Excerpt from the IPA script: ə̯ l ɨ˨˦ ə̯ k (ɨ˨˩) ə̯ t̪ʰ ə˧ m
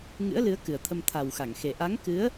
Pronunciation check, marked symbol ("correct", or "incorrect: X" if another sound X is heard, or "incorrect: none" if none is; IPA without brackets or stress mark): correct